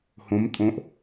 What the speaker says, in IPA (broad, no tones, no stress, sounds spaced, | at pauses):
h õ m tʼ õ ʔ